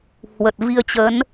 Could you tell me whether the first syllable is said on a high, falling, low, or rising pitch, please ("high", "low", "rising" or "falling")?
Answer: low